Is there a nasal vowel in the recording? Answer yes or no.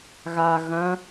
yes